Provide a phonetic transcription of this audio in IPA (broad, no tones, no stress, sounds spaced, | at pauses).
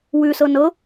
w ʉ s ɤ n ɤ